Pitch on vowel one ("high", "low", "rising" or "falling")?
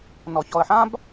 low